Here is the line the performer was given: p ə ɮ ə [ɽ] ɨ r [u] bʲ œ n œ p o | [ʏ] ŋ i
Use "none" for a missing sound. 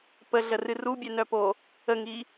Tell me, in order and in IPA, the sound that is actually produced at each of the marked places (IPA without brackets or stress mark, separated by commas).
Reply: r, u, ə